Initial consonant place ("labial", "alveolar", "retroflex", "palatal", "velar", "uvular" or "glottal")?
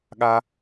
velar